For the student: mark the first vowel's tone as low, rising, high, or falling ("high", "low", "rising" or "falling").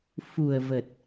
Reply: low